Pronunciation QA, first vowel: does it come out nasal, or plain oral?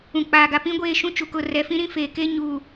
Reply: nasal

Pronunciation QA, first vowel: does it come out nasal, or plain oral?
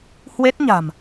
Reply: oral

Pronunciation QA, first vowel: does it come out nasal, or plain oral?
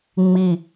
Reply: oral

